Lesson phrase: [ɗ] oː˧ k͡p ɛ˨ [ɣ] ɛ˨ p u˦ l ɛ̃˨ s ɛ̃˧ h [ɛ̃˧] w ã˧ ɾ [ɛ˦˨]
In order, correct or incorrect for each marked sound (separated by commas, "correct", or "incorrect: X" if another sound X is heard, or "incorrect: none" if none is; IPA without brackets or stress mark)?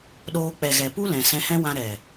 correct, correct, incorrect: ɛ̃˦, incorrect: ɛ˨